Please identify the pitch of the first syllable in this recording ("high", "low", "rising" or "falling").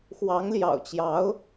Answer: rising